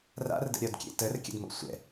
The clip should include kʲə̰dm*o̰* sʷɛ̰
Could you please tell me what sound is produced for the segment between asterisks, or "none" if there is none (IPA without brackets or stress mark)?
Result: o̰